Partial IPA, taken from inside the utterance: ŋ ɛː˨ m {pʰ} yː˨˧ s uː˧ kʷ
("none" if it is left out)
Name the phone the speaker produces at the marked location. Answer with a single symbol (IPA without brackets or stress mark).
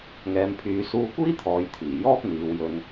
pʰ